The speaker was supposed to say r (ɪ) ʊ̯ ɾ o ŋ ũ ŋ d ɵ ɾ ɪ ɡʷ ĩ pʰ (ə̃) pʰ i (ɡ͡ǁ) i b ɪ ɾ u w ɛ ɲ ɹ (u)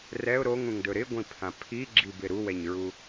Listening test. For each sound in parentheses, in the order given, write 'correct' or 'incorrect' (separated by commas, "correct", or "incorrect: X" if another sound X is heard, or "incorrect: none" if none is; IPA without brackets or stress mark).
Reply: incorrect: ɛ, incorrect: ã, correct, correct